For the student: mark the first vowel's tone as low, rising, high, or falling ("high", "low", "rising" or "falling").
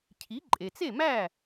rising